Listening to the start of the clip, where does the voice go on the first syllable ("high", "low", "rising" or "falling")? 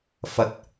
low